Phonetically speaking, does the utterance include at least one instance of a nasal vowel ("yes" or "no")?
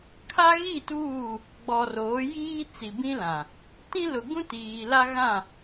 yes